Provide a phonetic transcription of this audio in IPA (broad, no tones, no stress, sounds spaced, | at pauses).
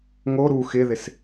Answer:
ŋ o ɾ u x ɪ ð ɪ s